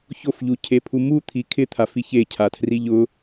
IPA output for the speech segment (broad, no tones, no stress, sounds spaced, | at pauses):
ç o f ʎ u cʰ e pʰ u m u t̪ʰ i kʰ ɪ t̪ʰ a f i ç e cʰ a tʰ r i ʎ ʊ